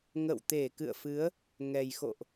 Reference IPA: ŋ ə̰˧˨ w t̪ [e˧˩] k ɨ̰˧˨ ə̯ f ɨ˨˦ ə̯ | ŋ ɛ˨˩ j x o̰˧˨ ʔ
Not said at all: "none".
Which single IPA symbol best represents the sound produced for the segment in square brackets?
e˧˩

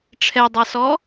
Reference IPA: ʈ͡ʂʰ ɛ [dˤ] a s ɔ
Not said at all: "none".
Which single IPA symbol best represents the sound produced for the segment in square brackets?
dˤ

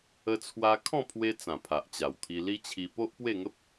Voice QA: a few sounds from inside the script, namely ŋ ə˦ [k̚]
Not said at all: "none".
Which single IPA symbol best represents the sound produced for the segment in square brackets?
p̚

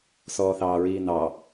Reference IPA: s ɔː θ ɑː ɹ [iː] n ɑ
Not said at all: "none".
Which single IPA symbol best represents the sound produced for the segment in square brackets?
iː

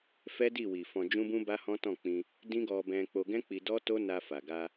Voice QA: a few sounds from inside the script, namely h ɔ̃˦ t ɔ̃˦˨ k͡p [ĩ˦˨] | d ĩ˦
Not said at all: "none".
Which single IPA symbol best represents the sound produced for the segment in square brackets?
ĩ˧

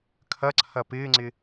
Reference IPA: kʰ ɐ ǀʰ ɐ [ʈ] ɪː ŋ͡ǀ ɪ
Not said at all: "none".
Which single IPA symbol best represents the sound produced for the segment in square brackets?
p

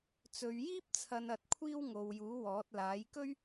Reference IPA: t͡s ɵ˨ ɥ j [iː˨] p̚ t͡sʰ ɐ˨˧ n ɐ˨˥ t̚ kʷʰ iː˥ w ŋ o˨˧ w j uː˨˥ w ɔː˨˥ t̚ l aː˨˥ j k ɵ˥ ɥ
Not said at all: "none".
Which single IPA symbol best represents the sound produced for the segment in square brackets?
iː˥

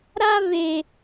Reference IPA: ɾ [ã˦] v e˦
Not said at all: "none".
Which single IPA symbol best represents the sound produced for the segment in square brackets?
a˦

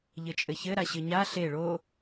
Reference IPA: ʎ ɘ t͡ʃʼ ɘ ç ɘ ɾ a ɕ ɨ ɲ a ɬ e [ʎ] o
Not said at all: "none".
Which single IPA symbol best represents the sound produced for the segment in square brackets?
ɭ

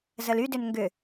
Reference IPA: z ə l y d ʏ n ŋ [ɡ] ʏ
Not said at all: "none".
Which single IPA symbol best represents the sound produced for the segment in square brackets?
ɡ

